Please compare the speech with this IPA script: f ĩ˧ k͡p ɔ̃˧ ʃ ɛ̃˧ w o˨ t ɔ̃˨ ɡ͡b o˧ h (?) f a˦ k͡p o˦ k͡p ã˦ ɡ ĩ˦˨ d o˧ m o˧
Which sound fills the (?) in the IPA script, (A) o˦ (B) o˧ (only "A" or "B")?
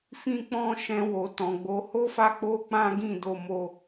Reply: A